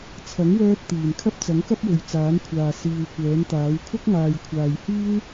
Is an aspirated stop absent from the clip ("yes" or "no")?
no